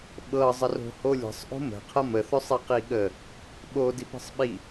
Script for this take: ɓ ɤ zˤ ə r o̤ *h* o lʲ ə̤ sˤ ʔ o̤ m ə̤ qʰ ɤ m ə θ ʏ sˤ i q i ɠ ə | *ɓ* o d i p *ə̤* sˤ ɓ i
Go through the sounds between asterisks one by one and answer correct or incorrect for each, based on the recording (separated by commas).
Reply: correct, correct, correct